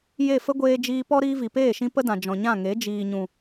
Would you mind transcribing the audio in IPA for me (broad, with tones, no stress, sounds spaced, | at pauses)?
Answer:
j e˦˨ f ə˦ ɡʷ eː˧ d͡ʒ iː˧ p ɔ˦ ɾ iː˧ v i˨ p eː˦˨ ʃ ĩ˧ p ə˦ d ã˨ d͡ʒ ɔ̃˨ ɲ ã˦˨ ŋ e˨˦ d͡ʒ iː˨ ɲ ũ˨